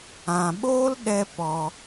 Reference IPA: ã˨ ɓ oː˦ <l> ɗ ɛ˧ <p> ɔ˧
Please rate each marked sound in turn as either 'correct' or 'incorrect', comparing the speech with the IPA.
correct, correct

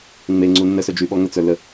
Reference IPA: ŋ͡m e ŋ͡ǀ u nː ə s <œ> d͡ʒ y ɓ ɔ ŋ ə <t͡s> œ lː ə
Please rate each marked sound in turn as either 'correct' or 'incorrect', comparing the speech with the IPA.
correct, correct

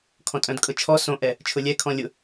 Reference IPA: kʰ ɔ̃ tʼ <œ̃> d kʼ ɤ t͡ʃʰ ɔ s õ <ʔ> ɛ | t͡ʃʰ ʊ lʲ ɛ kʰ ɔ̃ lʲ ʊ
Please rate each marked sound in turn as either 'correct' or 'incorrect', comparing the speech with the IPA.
correct, correct

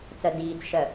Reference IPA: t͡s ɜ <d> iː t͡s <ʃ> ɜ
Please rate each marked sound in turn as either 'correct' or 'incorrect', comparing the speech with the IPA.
correct, correct

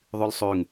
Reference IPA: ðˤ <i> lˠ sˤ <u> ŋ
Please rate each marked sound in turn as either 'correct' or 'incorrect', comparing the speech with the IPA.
incorrect, incorrect

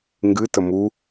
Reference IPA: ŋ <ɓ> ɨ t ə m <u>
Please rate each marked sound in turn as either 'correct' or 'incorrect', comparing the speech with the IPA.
incorrect, correct

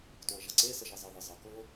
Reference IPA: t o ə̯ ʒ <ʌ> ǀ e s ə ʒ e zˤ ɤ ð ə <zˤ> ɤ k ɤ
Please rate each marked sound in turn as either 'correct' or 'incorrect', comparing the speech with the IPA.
correct, correct

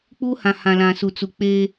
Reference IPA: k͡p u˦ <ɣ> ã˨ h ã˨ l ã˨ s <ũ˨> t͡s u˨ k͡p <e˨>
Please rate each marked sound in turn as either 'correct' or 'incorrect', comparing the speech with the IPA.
incorrect, incorrect, incorrect

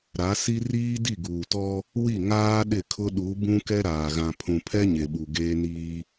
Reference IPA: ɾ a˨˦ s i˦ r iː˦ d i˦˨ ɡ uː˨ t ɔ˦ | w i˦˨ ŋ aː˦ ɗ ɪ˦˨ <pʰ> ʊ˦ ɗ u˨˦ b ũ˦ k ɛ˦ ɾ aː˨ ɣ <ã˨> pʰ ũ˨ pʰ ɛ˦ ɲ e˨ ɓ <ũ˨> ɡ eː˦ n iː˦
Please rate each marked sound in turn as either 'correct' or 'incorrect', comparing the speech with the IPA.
incorrect, correct, incorrect

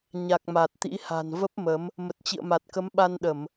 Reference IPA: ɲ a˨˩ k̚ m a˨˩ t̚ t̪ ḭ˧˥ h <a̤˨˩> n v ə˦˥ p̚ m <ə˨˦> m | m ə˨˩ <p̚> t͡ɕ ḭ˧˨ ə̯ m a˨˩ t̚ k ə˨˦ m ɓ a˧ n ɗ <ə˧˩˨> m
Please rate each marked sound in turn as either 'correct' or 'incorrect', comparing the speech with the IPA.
correct, correct, incorrect, correct

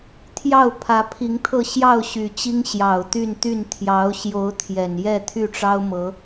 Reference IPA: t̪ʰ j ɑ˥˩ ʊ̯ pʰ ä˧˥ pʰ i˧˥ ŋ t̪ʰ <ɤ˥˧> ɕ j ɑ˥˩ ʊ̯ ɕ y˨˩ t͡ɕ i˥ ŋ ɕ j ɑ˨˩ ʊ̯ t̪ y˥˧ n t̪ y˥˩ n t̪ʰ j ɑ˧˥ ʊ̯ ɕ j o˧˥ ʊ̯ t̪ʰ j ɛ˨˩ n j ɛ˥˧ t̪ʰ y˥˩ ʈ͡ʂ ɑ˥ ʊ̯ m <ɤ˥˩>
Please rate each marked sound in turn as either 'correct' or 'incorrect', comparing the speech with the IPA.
correct, incorrect

